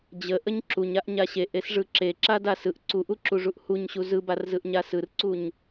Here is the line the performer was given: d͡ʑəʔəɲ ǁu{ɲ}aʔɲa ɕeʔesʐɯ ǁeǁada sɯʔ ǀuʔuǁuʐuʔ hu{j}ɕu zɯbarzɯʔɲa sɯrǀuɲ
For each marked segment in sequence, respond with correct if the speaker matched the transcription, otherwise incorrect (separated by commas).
correct, incorrect